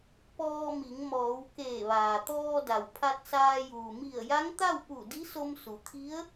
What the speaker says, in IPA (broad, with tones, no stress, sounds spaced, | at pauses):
p ɔː˧ m i˩˧ ŋ m ɔː˩˧ w k eː˧˩ ʋ aː˩ t̪ ɔː˧ d a˩ w pʰ a˧ t̚ s aː˧ j uː˩ m i˧˩ ə̯ j a˧˥ ŋ t̪ a˥˨ w p u˧˩ d i˧˥ s o˧ m s u˩˧ t̪ʰ i˧˥ ə̯